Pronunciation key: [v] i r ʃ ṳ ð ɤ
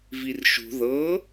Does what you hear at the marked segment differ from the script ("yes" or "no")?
no